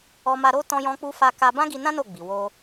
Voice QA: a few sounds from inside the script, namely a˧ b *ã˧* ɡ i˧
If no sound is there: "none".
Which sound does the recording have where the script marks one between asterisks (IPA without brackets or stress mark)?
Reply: ã˦